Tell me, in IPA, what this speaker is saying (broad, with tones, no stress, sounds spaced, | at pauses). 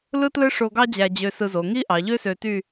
l ɯ˥ t l ɯ˥ ʂ o˧ ɡ ɑ˥ d͡ʑ æ˧ d͡ʑ ø˧ s ɯ˧ z o˩˧ ŋ i˥ ʔ ɑ˩˧ ʎ ø˥ s ø˧ t y˥˧